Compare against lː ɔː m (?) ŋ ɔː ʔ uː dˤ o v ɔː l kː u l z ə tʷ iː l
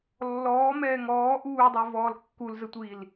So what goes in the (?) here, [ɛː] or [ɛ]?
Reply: ɛː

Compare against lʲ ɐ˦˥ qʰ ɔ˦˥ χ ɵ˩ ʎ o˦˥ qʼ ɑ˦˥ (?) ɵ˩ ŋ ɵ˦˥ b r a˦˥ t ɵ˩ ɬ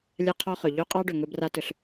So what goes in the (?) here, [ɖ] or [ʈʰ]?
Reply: ɖ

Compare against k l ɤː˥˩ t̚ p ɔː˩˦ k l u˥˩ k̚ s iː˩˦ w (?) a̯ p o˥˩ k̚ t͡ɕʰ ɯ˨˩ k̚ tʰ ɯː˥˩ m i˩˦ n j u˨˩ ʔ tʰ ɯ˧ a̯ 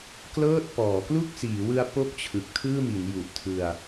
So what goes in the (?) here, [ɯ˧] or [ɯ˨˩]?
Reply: ɯ˧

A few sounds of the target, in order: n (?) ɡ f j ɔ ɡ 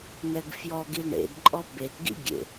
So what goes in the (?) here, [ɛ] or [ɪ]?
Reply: ɛ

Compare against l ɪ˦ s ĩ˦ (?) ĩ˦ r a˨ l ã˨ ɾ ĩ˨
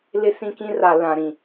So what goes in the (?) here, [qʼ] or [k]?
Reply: k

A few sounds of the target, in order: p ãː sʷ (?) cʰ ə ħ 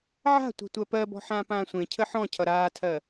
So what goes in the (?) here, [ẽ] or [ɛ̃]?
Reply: ẽ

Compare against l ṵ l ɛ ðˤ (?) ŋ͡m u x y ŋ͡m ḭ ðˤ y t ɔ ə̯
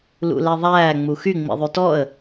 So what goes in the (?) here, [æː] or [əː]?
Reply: æː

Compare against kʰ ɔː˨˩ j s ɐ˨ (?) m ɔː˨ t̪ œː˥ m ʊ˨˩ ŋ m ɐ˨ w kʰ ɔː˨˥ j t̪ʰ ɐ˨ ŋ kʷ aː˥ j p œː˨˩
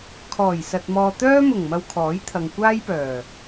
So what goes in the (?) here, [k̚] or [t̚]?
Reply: t̚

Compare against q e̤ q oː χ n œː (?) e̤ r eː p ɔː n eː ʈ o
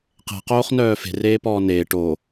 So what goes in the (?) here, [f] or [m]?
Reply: f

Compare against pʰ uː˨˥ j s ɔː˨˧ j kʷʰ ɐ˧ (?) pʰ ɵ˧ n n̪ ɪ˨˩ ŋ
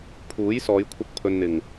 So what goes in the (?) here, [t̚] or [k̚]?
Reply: k̚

